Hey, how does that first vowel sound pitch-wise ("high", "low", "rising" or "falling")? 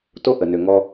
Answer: high